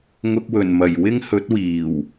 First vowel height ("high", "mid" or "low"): high